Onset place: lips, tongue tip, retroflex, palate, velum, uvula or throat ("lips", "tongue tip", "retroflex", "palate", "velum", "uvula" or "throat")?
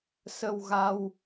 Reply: tongue tip